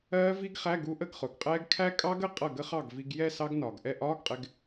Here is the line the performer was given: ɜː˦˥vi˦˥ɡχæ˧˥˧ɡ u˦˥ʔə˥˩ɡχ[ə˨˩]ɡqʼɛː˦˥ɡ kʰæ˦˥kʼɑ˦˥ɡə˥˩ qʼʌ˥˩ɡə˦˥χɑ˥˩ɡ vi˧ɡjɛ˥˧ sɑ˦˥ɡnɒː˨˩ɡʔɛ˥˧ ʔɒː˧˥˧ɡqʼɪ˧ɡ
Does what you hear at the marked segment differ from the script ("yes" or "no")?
yes